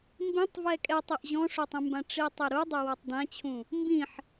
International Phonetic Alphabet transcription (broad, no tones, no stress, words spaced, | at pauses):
mbĩtˤ vɛkʼɛtˤeʔ ʑɔ̃ʂotˤĩmbã ʈ͡ʂitˤeɾu dˤɛwɔtˤdãt͡ɕʰũ | mbĩħ